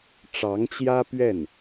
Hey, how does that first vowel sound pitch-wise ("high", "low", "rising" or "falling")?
rising